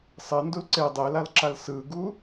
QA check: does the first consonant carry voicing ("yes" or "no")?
no